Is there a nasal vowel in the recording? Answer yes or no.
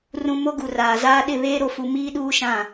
yes